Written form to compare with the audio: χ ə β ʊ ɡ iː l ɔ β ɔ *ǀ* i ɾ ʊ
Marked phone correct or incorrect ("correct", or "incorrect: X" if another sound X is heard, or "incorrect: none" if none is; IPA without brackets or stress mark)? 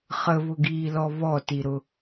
incorrect: t